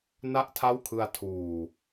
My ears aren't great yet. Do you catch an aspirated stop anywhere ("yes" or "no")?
yes